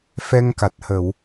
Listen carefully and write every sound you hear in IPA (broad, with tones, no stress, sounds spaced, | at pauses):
f ɛ˧ ŋ k a˨˩ t̚ h ə˨˩˨ w